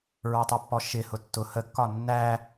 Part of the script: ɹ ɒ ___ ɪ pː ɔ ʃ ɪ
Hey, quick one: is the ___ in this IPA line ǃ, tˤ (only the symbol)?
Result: tˤ